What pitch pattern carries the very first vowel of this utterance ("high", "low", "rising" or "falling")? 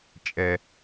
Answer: low